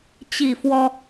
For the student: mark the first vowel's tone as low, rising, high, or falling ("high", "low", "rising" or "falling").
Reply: falling